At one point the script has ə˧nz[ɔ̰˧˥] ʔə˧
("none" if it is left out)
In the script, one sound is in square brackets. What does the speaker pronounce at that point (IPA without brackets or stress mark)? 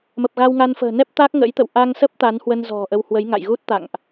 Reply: ɔ̤˨˩